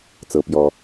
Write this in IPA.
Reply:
t͡s ɤ˩ p j ɔ˩

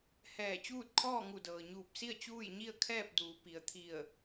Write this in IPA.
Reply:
h ɛː˧˩ t͡ɕ uː˥˨ t̚ kʰ ɔː˥˨ ŋ u˧˩ d ɤː˩ ɲ uː˧˩ p̚ s i˥˨ ə̯ t͡ɕ uː˥˨ j ɲ i˥˨ ə̯ kʰ ɛː˥˨ p̚ d uː˩˧ p i˩ ə̯ t̪ʰ i˧˩ ə̯

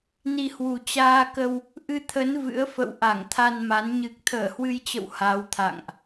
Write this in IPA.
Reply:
n i˧ h w u˨˩ t͡ɕ aː˧ k ə˧ w | ʔ ɨ˧ t̪ʰ ə˨˦ n v ɨ̰˧˥ ə̯ f ə̰˧˨ w ʔ a˧˩ ŋ t̪ʰ a˧ n m a˨˦ n ɲ ɨ˨˩ k̚ t̪ʰ əː˧˩ h w ɨ˧ j t͡ɕ ə̰˧˨ w h a˨˦ w t̪ʰ a̰˧˨ ŋ ʔ

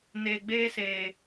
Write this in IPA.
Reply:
n eː˨ ɡ͡b eː˦ s eː˨

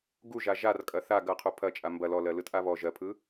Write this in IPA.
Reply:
ɡ u ʒ a ʒ a r kʼ ɐ θ a ɡ ɐ qʰ u pʰ ɐ t͡ʃʼ a m b ɐ l ɔ l ɜ l ɯ t ʔ a β ɔ ʒ ɜ pʰ ɯ

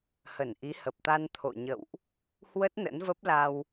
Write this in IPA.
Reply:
h ə˧˩ n ʔ i˨˦ h ə˨˩ p̚ t̪ a˧ n t̪ʰ o̰˧˨ ɲ ə̰˧˨ w ʔ | h w ə˦˥ t̚ n ə̰˧˥ n v ə˦˥ p̚ l a˧ w

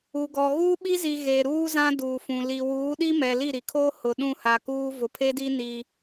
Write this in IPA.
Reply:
u˨ ɡ ɔ˨ ɣ uː˦ ɓ i˦ z i˨ ɣ e˨ ɾ uː˦ z ã˦ d uː˨ f ũ˨ l i˨ w uː˨˦ ɗ i˦ m ɛ˨ l i˦˨ ɾ i˨ kʰ oː˦ h ʊ˨ ɗ ũ˦˨ h a˨ k uː˦ v ʊ˨ pʰ e˦ d i˦ n i˦

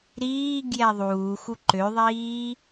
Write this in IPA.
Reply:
ɾ iː ɡ j ɛ ðˤ uː x u ǃ ø ðˤ iː

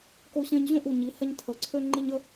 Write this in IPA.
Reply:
k o˧ ɕ ẽ˧ ɲ ʑ õ˥˧ ʔ u˧˩ ɲ i˩˧ h ɛ˧ ɲ tʰ ə˩˧ ǀʰ ø˧ ŋ͡ǃ i˧ ɲ ə˥˧

